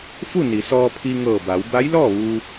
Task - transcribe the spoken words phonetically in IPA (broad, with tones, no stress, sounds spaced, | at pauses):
f u˥˨ n i˩˧ s ɔː˧ pʰ i˧ ŋ ɤː˧˩ b a˩˧ w b a˧˥ j l ɔː˥˨ ʋ u˧